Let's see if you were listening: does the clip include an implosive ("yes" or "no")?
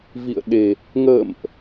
yes